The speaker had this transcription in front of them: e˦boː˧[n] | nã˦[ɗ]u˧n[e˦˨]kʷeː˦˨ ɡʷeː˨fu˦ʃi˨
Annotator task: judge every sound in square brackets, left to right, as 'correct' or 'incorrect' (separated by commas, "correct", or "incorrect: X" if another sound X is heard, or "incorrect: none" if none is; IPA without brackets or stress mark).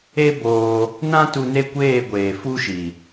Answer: incorrect: none, incorrect: t, correct